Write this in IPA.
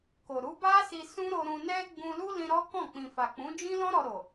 k o˨ ɾ u˨˦ b a˦ s i˧ s ũ˦ ɾ o˧ ɾ ũ˧ n ɛ˦ ɡ͡b ũ˧ l u˦ l ĩ˧ ɾ ɔ˦ k ɔ̃˦˨ k͡p ĩ˨ f a˨ k͡p ũ˨˦ d͡ʒ ĩ˦ l ɔ̃˦ ɾ ɔ˧ ɾ o˨

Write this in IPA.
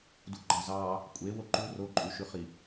d u ɡ͡ǃ ɑ z ɑ | kʷʼ e w o ǃ u r o ǃʼ y ʃ y χ i

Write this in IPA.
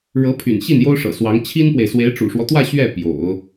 ɻ ɤ˧˥ pʰ y̰˨˩ n ɕ i˥˩ n j o˥ ʊ̯ ʂ ɤ̰˨˩ s w ɑ˧˥ ŋ t͡ɕʰ i˥ n p w e˨ ɪ̯ s w e˧˥ ɪ̯ ʈ͡ʂ ṵ˨˩ ʂ w ɔ˦ t̪ w ä˥˧ ɕ ɥ ɛ˥˩ p j o̰˨˩˦ ʊ̯

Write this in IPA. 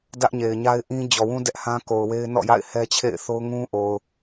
d ä˦ ʔ ɲ e˨ ɪ̯ ɲ a˦ ɪ̯ ʔ ĩ˦ d͡ʑ ɔ˨ w ũ˦ d ɛ˦ ʔ h ã˦ k o˨ ʊ̯ w e˦ ɪ̯ n ɔ̰˦˨ j a̰˦˨ ɪ̯ h ɛ˦ t͡ɕʰ ḛ˦˨ ɪ̯ θ o˦ ʊ̯ ŋ ũ˦ ʔ o˨ ʊ̯

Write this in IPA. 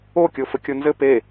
o kʲ o f ɘ kʲ o n z ɘ p e

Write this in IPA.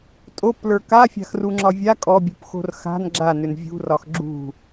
tʼ o p l ə˞ k a fʲ a̤ x r u ŋ͡ǁ ɒ vʲ a kʼ ɔ bʲ ṳ p x o̤ r x a̤ n ɡ͡ǁ a n ʏ n vʲ ṳ r ɒ x ɡ͡ǁ ṳ

